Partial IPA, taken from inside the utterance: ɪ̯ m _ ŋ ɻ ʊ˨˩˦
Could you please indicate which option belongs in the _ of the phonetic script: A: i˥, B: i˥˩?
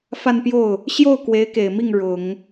B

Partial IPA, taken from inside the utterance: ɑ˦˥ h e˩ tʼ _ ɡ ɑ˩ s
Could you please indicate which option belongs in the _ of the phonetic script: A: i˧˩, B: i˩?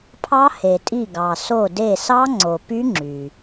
A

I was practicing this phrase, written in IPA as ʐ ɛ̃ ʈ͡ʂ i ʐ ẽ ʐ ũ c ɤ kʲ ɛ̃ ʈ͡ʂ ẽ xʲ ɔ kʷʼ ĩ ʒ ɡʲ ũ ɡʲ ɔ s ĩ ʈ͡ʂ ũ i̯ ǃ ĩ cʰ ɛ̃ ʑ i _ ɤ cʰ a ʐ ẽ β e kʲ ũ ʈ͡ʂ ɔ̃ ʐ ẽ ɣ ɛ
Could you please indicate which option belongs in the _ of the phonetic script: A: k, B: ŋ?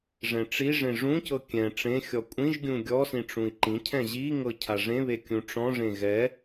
B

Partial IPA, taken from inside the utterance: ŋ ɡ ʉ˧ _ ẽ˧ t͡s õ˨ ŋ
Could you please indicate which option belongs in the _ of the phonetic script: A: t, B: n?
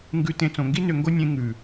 A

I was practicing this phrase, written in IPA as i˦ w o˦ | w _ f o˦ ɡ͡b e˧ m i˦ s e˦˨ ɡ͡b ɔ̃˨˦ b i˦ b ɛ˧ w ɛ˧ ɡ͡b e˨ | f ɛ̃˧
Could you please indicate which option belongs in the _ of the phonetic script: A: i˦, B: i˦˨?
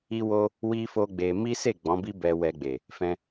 A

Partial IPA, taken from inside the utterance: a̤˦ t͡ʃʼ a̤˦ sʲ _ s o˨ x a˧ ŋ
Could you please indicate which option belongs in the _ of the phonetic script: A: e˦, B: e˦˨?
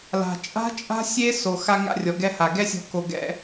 A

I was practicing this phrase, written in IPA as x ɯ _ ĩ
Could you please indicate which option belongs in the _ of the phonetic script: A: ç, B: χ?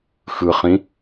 B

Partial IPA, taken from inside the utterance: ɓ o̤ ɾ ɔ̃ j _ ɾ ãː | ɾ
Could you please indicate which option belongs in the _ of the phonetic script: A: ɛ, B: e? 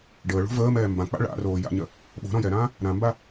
A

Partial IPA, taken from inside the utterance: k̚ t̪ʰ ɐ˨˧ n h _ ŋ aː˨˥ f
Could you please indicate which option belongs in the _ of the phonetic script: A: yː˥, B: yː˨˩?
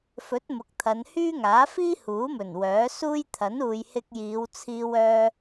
A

